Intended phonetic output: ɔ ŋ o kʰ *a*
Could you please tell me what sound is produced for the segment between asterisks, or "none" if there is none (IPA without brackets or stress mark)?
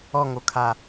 a